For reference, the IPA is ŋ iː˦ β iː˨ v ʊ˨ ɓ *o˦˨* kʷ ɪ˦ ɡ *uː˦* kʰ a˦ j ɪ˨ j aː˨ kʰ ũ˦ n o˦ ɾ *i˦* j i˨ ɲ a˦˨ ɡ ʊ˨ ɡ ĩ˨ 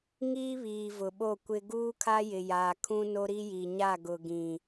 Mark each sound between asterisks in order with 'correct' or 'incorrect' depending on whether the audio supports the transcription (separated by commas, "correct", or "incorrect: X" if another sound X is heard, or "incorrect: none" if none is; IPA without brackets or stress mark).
correct, correct, correct